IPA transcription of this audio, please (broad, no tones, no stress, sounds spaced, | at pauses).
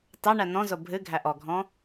t ɑ ɳ æ n ɔ̃ z o bʱ ɨ ɡʱ æ ʔ ɔ ɡʱ ɔ̃